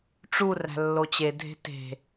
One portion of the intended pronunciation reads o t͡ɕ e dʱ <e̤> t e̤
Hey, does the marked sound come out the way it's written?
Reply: yes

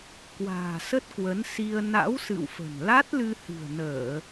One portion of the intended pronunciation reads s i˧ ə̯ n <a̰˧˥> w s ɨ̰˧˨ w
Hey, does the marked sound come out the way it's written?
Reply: yes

